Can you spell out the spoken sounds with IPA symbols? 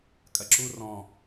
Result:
kʼɐǁu rɔ̃

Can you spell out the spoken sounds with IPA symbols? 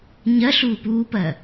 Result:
ɲɐɬuːp uːpɐ

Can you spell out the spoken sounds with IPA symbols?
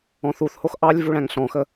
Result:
ɔ̃θuθhox ʔɑlʲ vuɭæ̃ŋɬɔ̃xə

